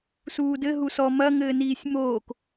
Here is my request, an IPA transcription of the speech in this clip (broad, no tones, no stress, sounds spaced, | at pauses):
s uː d ɘ ɦ u s ɔ m ɐ ŋ ɘː n iː sʲ m oː k